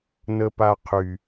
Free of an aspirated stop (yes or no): no